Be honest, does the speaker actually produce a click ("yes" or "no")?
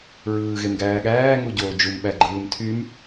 yes